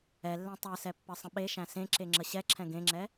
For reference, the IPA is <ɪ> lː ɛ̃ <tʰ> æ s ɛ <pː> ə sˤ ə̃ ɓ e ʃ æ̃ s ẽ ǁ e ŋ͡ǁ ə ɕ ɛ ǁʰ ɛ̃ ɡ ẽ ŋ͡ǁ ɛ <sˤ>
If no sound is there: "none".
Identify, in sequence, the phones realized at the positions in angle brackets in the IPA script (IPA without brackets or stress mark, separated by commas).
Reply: ɛ, tˤ, pː, none